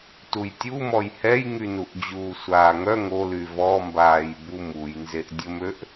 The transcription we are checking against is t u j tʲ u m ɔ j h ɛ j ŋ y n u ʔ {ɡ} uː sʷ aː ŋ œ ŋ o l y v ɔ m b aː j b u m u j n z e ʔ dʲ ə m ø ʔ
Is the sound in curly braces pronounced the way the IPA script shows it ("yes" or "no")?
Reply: no